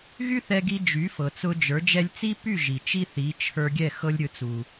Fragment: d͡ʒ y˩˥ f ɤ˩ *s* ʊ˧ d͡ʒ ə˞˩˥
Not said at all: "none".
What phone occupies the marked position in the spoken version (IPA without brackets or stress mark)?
t͡s